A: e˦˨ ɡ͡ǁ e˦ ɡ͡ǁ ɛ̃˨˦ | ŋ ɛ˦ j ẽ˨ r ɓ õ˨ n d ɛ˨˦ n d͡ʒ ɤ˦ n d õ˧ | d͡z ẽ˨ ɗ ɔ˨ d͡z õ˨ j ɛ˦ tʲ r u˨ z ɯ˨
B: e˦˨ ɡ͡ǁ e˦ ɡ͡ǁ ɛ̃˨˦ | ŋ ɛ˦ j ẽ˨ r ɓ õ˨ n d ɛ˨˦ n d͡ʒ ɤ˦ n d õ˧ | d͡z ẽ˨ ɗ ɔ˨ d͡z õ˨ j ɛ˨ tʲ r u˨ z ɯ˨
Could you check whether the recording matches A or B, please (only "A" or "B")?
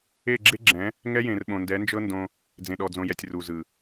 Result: B